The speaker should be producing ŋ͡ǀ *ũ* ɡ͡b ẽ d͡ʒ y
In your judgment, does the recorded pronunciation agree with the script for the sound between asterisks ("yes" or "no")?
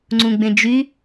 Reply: yes